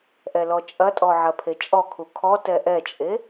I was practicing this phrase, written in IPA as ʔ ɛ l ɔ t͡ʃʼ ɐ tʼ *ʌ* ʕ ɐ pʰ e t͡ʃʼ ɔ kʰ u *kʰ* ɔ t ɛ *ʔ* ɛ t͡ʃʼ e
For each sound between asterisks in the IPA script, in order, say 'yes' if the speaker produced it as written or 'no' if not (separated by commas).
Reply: no, yes, yes